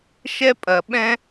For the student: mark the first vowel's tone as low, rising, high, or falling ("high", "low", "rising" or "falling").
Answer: high